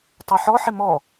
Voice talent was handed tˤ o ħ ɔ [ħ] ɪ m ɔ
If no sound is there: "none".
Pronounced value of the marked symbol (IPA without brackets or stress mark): ħ